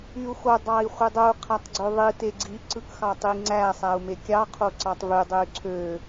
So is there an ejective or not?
no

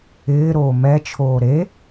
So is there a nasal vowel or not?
no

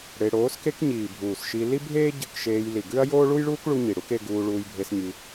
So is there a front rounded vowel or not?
no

